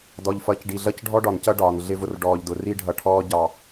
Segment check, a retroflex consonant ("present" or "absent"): present